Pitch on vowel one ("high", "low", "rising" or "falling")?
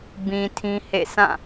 low